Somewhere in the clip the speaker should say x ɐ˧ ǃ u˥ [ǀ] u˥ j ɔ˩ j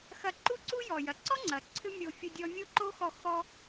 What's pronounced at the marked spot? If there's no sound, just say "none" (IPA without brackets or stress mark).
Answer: ǀ